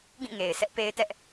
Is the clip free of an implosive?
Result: yes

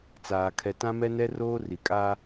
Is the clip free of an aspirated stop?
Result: no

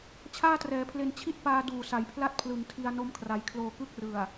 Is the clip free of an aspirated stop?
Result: no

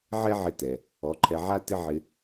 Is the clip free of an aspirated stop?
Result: no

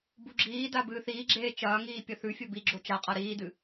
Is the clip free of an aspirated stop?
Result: yes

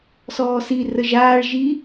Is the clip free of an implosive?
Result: yes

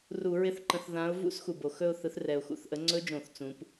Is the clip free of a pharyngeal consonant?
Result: yes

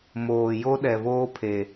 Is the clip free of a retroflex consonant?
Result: yes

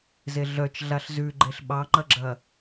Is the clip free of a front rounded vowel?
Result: no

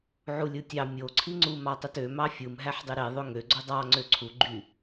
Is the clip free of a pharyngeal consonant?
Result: no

